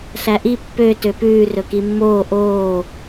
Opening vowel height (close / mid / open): open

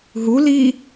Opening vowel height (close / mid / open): close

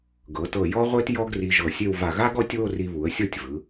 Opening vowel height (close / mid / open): mid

